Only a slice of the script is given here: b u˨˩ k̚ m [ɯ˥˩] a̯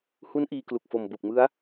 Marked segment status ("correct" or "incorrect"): incorrect